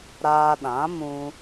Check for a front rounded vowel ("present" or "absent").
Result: absent